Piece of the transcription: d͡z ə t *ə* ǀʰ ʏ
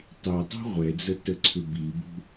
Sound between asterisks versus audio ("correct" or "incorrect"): correct